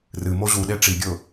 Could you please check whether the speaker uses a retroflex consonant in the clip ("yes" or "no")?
yes